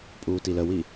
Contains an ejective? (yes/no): yes